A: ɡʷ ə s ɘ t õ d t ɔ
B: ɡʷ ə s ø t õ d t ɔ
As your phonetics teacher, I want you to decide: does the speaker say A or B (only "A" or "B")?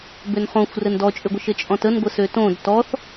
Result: B